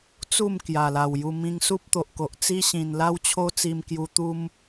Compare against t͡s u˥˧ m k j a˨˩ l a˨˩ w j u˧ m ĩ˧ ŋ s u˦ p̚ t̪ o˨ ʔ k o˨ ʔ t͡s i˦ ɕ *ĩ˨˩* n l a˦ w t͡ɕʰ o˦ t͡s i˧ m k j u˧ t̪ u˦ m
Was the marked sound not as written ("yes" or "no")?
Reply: no